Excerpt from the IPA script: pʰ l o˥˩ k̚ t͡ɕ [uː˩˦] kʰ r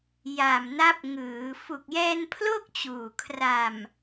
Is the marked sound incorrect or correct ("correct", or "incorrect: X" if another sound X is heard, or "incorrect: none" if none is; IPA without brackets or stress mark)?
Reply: incorrect: uː˨˩